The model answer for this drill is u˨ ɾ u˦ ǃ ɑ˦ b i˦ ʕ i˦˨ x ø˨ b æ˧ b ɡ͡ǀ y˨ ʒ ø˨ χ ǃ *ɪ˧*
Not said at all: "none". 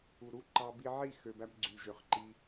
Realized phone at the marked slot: i˧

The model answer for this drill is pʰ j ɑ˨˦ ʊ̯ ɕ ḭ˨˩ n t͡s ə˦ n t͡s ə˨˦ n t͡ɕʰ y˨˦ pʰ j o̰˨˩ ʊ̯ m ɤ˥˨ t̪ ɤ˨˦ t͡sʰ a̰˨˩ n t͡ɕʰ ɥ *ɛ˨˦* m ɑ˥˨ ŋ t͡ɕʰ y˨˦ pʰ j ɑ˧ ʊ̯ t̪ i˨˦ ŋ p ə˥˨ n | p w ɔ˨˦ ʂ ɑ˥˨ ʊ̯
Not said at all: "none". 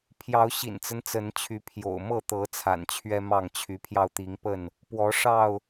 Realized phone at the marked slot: ɛ˦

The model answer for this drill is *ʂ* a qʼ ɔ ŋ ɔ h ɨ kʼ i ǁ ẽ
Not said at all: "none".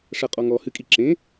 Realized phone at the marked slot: ʂ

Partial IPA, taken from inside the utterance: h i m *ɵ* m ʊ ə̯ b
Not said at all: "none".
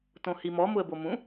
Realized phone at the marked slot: ɔ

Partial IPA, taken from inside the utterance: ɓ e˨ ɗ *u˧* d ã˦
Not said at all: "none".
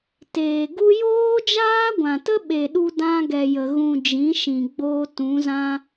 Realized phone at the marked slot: u˧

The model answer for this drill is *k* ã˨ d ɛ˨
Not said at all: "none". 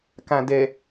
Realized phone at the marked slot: k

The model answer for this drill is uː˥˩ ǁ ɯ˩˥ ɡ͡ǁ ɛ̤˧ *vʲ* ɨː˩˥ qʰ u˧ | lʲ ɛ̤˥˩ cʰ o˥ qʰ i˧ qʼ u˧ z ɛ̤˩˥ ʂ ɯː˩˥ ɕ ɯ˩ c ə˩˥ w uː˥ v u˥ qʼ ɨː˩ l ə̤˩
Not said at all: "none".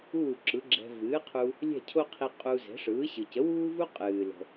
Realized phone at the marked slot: v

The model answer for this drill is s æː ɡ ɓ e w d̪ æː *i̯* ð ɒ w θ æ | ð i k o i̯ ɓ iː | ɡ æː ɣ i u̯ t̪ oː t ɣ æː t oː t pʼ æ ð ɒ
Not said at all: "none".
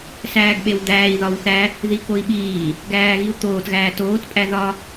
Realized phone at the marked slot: i̯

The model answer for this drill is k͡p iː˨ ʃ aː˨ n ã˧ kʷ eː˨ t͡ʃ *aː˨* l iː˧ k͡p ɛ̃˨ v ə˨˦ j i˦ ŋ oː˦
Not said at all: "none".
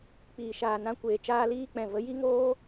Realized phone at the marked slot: aː˧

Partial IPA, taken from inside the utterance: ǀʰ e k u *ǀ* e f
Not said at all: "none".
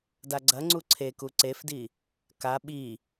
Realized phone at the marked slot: ǀ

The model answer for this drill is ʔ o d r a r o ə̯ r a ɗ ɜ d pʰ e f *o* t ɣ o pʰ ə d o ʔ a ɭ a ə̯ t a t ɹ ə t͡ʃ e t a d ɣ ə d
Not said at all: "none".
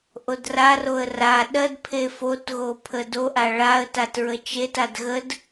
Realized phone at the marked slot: o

